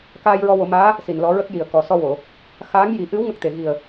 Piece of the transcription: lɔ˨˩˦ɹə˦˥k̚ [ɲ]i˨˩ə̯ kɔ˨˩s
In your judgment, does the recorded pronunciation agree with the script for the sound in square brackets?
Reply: no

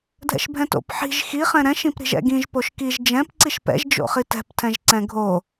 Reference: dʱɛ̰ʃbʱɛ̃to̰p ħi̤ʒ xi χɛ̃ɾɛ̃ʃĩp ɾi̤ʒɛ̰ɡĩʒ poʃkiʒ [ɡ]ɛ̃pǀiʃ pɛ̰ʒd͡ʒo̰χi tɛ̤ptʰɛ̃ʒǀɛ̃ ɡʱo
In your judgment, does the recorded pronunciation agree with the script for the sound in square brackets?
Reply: no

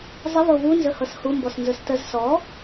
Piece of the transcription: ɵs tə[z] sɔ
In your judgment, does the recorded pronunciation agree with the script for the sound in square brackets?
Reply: yes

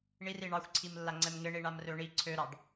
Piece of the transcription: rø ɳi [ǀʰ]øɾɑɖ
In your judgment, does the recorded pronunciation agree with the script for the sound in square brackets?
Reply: yes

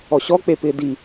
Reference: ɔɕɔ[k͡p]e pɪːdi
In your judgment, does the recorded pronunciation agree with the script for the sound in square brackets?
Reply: yes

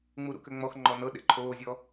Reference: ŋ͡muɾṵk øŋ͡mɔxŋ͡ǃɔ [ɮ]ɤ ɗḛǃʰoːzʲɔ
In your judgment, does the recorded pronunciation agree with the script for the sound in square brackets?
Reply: no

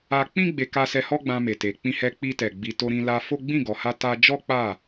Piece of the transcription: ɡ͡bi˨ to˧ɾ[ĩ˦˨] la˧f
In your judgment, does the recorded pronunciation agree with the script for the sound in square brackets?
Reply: no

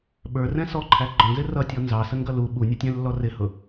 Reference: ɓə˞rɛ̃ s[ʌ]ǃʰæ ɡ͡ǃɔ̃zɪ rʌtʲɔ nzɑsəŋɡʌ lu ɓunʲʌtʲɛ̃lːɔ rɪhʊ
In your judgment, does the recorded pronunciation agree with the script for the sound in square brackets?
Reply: no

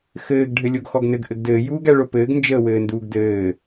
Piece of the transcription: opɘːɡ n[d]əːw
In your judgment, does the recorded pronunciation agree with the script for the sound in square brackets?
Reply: no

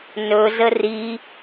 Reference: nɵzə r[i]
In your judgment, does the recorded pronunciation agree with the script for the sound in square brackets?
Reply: yes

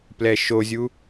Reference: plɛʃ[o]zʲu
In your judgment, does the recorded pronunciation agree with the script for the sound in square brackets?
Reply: yes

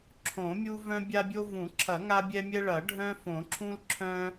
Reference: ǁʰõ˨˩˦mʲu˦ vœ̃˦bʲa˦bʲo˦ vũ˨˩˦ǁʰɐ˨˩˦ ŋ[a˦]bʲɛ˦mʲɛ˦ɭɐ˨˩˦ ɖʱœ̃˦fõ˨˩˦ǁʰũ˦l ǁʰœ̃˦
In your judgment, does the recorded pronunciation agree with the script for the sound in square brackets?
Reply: yes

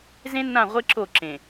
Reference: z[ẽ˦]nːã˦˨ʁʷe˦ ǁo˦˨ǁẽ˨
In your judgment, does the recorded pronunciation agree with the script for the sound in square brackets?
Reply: yes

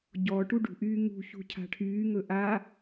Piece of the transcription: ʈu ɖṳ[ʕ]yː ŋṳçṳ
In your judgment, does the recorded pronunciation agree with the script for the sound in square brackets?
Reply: no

